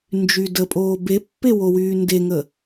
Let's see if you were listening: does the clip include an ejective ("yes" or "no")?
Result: yes